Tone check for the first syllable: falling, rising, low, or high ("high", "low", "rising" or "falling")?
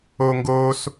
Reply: high